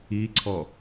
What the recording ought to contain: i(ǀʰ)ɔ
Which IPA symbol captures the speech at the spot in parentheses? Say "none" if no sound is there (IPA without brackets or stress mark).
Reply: ǀʰ